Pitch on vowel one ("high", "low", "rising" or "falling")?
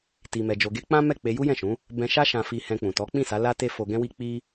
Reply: low